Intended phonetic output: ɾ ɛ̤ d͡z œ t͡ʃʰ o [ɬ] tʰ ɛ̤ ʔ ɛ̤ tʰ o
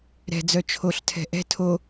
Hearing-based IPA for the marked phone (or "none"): ɬ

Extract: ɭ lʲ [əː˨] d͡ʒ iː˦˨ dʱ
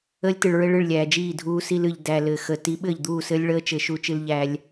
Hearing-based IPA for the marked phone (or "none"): æː˨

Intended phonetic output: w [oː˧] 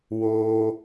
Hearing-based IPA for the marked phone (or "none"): oː˩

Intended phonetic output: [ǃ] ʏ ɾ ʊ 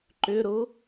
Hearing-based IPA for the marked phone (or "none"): ǃ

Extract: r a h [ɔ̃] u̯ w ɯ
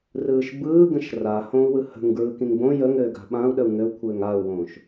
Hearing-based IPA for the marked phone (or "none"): õ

